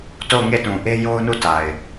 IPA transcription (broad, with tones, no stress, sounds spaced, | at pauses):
t o˦˨ ʊ̯ ŋ e˦˨ t ũ˨ ʔ e˦ j o˦ ʊ̯ n u˦˨ t a˨ ɪ̯